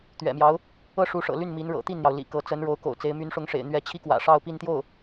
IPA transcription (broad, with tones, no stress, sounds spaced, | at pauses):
t̪ ɥ ɛ̰˨˩ m j ɑ˧˥ ʊ̯ | ɤ˥ ʂ u˧˥ ʂ ɤ̰˨˩ l y˥˩ n m i˧˥ n ɻ ɤ̰˨˩ t̪ i˥˩ n n̪ j ɑ˩ ʊ̯ l ḭ˨˩ k ɤ˧˥ t͡s ə˧˥ n ɻ o˧˥ ʊ̯ k o̰˨˩ ʊ̯ t͡s e˧˥ ɪ̯ m y˧˥ n ʂ ʊ˧˥ ŋ ʂ ḛ˨˩ ɪ̯ n̪ ɥ ɛ˧˥ t͡ɕʰ i˥ k w ä̰˨˩ ʂ ɑ˥˧ ʊ̯ p i˥˧ n t̪ j o˥˩ ʊ̯